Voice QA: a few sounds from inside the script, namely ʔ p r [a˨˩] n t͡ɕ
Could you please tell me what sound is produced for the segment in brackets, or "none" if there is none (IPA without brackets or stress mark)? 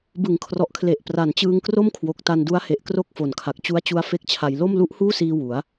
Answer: a˨˩